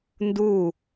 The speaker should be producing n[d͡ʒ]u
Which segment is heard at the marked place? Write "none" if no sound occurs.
d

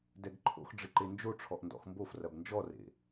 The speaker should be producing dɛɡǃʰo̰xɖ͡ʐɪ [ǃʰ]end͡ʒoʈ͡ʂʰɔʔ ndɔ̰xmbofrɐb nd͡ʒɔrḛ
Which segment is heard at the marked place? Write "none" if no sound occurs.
ǃ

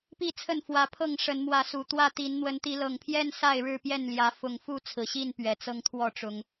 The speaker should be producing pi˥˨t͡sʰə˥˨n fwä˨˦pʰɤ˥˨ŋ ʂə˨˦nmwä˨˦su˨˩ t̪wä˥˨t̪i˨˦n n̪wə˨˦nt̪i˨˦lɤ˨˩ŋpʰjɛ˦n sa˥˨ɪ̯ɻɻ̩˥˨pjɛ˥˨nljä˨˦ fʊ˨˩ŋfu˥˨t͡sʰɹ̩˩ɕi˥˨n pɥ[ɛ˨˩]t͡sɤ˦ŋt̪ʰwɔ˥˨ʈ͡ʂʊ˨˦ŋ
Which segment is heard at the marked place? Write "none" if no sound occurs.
ɛ˨˩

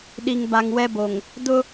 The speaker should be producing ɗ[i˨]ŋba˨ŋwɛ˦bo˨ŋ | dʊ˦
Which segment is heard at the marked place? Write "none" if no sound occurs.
i˨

